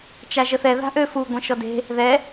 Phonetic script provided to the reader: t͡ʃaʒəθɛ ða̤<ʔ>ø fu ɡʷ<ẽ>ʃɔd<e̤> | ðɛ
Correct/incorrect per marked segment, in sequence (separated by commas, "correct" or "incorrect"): correct, correct, correct